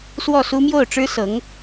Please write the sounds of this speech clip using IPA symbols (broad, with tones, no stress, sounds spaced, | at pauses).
s w ɔ˥˩ s u˥ m j o˥˩ ʊ̯ ʈ͡ʂ ɻ̩˥ s ɤ˧˥ ŋ